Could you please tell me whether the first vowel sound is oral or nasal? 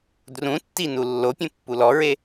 nasal